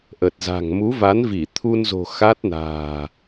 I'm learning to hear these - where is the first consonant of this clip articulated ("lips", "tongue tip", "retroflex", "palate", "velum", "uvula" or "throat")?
throat